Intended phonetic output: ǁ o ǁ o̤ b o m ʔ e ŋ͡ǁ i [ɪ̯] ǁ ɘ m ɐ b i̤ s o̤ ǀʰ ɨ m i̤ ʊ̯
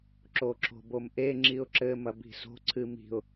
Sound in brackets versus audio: incorrect: ʊ̯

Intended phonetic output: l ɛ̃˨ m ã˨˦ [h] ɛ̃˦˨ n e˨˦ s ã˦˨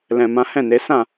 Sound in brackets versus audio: correct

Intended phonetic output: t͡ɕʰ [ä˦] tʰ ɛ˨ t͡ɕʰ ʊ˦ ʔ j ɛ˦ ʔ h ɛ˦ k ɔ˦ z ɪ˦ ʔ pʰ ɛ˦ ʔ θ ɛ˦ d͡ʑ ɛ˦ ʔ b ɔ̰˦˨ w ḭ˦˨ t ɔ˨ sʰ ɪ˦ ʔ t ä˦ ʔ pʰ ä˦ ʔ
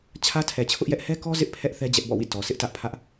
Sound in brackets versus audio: correct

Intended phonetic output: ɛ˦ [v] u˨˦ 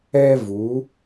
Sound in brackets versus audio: correct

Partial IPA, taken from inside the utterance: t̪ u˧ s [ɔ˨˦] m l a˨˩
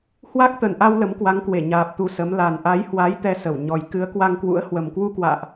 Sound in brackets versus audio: incorrect: ə˨˦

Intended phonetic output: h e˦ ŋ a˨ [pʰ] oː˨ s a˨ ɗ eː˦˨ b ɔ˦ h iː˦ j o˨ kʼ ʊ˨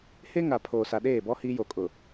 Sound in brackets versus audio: correct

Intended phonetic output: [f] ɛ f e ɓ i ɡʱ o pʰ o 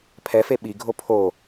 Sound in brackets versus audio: incorrect: pʰ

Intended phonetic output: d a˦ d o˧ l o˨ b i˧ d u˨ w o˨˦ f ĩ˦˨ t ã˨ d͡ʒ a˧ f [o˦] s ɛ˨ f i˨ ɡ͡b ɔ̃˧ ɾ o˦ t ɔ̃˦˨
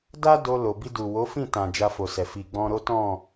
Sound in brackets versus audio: incorrect: o˨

